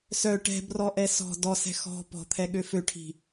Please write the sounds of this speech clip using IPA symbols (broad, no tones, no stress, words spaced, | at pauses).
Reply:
sœ ʈɛ̤brɔʔɛ sɔ̤ dɔsɛ̤ xɔ̤ pɔ̤t̪ʰɛɠø føʈʰi̤